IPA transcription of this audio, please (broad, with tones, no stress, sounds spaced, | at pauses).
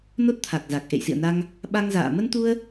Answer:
n o˦˥ t̚ t̪ʰ a˨˩ k̚ z a˨˩ k̚ ʔ ḛ˧˨ j s ḭ˧˨ ə̯ n a˧ ŋ | ɓ a˧ ŋ z a̰ː˧˨ m ə˧ n t̪ u˧ ə̯